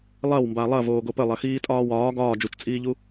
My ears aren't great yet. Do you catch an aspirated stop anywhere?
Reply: no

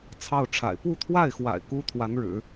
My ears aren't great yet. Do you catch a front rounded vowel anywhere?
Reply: no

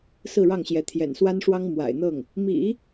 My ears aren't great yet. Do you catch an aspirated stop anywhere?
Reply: yes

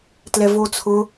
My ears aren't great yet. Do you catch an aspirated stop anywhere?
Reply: yes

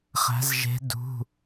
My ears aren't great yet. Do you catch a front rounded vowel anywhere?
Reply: no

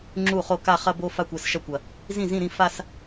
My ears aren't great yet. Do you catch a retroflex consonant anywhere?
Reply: no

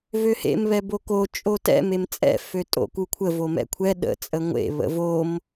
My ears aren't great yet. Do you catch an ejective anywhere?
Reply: yes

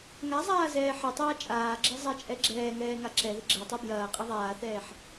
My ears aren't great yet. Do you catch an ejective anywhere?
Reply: yes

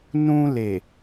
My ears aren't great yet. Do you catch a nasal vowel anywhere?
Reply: yes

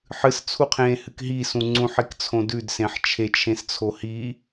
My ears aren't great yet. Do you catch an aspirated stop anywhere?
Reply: yes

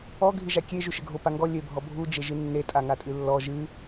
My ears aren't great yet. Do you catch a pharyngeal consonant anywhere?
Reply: no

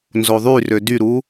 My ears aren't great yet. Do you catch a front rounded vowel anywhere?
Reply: yes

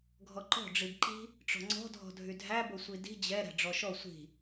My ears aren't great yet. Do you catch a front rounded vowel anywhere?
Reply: yes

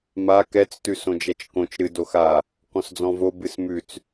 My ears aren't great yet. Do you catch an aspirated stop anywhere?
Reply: no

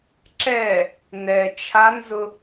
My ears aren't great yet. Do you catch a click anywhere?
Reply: yes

